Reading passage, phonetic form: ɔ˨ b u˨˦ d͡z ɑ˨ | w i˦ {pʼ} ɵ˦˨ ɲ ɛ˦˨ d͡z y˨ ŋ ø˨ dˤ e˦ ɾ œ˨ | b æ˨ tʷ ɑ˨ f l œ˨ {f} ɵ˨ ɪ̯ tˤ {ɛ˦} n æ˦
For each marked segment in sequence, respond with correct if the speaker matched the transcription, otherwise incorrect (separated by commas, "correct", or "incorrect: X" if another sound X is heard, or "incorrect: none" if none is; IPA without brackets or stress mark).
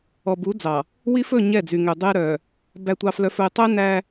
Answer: incorrect: f, correct, correct